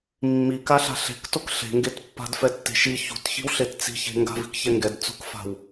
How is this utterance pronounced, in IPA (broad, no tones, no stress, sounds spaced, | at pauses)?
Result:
mː i k a ɬ a̤ ɬ e̤ k t o k ɬ e̤ ŋ ɡ e t pː a̤ d f ɛ tː e̤ ʃ i ç ṳ t ç i̤ w ɬ e t t͡s i̤ ç e̤ ŋ ɡ a̤ v i̤ k ç ɛ ŋ ɡ ɛ d t͡s ṳ k f a̤ w